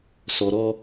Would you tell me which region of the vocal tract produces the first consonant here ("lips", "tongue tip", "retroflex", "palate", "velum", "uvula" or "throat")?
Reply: tongue tip